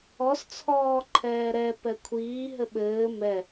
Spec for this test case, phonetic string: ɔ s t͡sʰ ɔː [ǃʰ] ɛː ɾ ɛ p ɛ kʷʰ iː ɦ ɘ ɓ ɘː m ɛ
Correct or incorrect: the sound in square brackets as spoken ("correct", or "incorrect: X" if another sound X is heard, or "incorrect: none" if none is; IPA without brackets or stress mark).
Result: correct